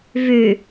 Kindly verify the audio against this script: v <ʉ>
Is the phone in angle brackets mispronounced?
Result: no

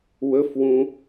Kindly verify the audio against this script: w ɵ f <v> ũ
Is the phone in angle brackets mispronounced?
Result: yes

